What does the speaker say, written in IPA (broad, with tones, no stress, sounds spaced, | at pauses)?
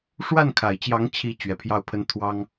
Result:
ʂ w a˥˩ n kʰ a˨˩ ɪ̯ t͡ɕ j ɑ˧˥ ŋ t͡ɕʰ i˧˥ t͡ɕ ɥ ɛ˨˩ pʰ j ɑ˥˩ ʊ̯ pʰ ə˥ n t̪ʰ w ɑ˥ ŋ